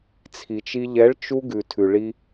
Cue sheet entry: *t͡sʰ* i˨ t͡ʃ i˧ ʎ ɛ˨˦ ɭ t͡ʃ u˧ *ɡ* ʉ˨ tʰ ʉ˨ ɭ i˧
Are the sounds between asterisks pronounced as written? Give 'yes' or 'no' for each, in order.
yes, yes

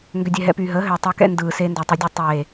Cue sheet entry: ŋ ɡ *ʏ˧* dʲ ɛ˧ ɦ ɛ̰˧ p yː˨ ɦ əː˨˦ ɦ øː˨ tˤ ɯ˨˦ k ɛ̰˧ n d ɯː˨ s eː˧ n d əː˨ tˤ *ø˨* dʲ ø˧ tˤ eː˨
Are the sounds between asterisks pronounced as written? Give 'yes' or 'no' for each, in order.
yes, no

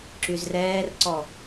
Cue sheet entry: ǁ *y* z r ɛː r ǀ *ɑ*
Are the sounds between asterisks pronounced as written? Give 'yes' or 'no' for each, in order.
yes, no

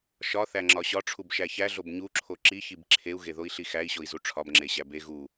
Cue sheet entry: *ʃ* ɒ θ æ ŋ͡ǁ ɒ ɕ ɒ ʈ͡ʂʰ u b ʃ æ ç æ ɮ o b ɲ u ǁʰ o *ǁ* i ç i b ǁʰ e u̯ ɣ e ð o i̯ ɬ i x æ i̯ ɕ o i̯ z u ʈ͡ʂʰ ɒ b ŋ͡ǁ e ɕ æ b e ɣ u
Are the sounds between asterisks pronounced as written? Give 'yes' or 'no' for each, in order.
yes, yes

